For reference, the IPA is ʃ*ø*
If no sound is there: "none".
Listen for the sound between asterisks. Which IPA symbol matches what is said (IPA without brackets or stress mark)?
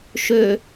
ø